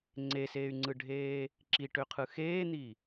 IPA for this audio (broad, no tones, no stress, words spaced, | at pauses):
ŋ͡ǀeseːy̯ŋ͡ǀɯɖʱeː | ǁiʈøqʰɯ xeːn̪i